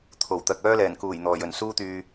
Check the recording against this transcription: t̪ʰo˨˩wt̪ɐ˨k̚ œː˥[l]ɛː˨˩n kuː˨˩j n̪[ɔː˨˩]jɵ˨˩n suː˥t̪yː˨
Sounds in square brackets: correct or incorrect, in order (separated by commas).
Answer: correct, correct